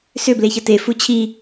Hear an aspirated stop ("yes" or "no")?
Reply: yes